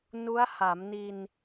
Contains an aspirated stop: no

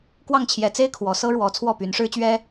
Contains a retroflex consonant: yes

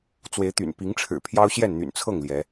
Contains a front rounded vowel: yes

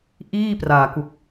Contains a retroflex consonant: no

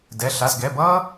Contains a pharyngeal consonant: no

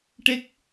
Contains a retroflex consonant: yes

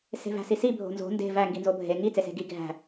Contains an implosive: no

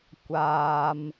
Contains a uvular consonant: no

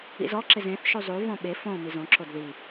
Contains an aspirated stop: no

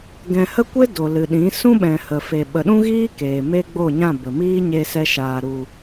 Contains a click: no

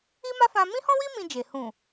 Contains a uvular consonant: no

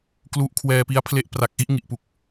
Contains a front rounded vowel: no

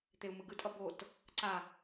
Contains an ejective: yes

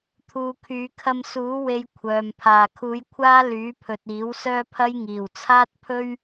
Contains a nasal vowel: no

